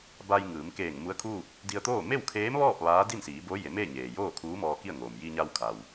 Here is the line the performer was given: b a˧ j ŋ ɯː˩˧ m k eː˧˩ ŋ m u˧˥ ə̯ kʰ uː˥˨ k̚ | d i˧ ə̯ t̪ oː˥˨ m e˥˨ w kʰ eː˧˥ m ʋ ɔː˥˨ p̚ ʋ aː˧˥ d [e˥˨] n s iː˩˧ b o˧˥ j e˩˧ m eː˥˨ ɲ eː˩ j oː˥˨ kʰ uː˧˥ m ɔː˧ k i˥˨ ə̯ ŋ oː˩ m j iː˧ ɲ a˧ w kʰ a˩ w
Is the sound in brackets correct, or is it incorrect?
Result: incorrect